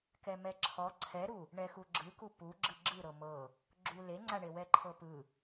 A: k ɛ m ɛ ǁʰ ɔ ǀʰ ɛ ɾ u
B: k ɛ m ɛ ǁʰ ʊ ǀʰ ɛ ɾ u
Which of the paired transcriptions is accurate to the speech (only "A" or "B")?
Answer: A